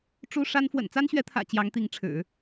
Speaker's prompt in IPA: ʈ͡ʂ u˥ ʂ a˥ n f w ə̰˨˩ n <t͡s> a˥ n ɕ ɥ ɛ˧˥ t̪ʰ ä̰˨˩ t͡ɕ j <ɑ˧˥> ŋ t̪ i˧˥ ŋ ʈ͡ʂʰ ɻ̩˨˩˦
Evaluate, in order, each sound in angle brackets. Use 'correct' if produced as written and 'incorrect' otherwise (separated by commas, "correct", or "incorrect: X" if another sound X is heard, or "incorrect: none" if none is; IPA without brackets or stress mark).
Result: correct, correct